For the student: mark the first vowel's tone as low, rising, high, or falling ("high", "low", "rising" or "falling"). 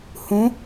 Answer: rising